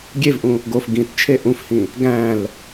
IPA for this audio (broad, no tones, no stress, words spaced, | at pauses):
ɡʲevʔũ | ɡof ɡĩtt͡ʃʰe ʔũfhĩ | ɡæ̃l